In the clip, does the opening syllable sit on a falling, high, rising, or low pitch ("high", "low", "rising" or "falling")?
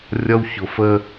high